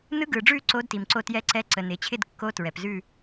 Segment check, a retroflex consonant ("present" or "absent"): present